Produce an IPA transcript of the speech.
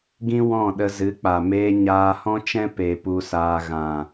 ɡ ĩ˦ w ɔ̃˦˨ ɗ ə˧ z ɨ˨˦ k͡p a˨ m eː˧ ɲ aː˧ h ɔ̃˦ t͡ʃ ɛ̃˦ p e˧ p u˧ s aː˧ ɣ ã˨

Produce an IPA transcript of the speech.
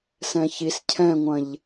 s ɛ̃ ç i s cʰ ɛ̃ ŋʷ ɐ̃ ʎ

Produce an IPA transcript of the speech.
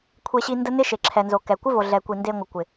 kʷʰ e˧ ɕ i˧ n d ə˦ n ɪ˦ ʃ e˨ ǁʰ ɛ˨ n z o˨ k ɛ˨ kʷ ɪ˦ v o˨ ɮ ɛ˨ kʷ i˨ n d e˧ ŋʷ ə˨ kʷ ɪ˨

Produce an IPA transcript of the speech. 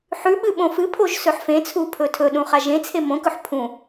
ħ ʉ ɓ ɨ ɓ õ f ɨ pʰ o ʒ s ɵ ħ f ẽ t͡sʰ u pʰ ɵ tʰ ɵ ɗ ũ χ a ʒ ẽ t͡sʰ e m õ k ɵ ħ pʰ ũ

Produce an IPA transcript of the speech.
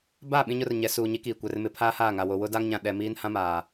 b a˦˨ ɓ ĩ˦ ɲ ʊ˦ r ɲ ɛ˨˦ s uː˨ ɲ i˦ k iː˨ kʷ ɛ˨ r m ɪ˦ pʰ aː˦ h aː˦˨ ŋ a˨ w o˨ w ʊ˦ d a˦ ŋ ɲ ã˨ ɗ ɛ˨ m iː˦ n h ã˦ m aː˨

